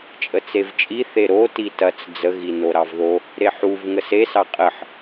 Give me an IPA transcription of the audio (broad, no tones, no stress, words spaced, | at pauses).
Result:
t͡ʃʼət͡sevt͡ʃʼi θeɾo titɐt͡s d͡zəɣi noɾɑvðo | ɾeħuv ŋəsesɑ qʼəħ